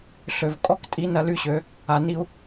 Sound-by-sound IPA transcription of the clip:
ɬ ø˨ v kʼ ɔ˦ k tʼ i˦ n ɐ˦ l y˦ ɕ ø˨˦ | a˨ n i˦ u̯

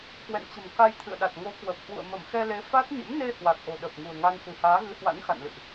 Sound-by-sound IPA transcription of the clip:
k w ɛ̰˧˨ n t͡ɕ ə̤˨˩ m k a˧ j t̪ʰ ɨ̰˧˨ ə̯ ɗ a˨˩ t̚ ŋ o˨˦ k w ə˨˩ p̚ h w ṵ˧˨ ə̯ m ə˧˩ m x ɛ˧ l e˨˦ f a˦˥ t̚ ɲ ə̰˧˥ m n e˧ h w a˨˩ k̚ ʔ o̤˨˩ ɗ ə˨˩ p̚ ŋ ṳ˨˩ ə̯ ŋ a˧ n s ɨ̤˨˩ h aː˨˦ ɣ ɨ˨˦ h w a̰˧˥ n x a̰˧˨ n l ɨ̰˧˨ ʔ

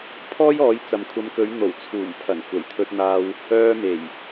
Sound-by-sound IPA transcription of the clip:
pʰ ɔː˥ j ɔː˨˧ j t͡s ɐ˨ m kʷʰ ɐ˨˧ m k ɵ˨˧ ɥ n̪ o˨˩ w t͡sʰ uː˨˩ m pʰ ɐ˨˩ n kʷ ɐ˨˩ j t̪ʰ ɵ˧ t̚ n̪ aː˧ w | œː˧ m e˨˩ j

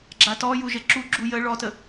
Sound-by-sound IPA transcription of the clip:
ɡ͡ǁ a t ɔ j u ʒ ə ǁ u ɡ͡ǁ u j ə ɭ ɔ t ə

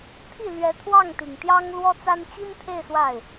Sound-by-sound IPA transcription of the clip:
t̪ʰ i˥˩ l ɥ ɛ˧˥ t̪ʰ w ɑ˥˩ ŋ t̪ i˨˩ ŋ t̪ j ɑ˥ ŋ l w ɔ˥ t͡s a˥ n t͡ɕ i˥ n t̪ʰ e˥˧ ɪ̯ s w a˥˩ ɪ̯

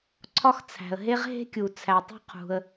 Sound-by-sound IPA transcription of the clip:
ǀʰ ɒ˥ x t͡sʰ æ̤˩ ə̯ ɦ e˥ ʁ ɦ e̤˥ kʲ u˩ t͡sʰ æ˩ tˤ ṳ˥ qʰ ṳ˩ ə̯

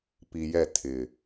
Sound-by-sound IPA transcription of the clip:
p i˨ j ɛ˦˨ tʰ ɪ˨

